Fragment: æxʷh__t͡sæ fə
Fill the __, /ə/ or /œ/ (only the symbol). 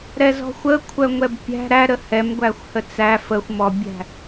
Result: ə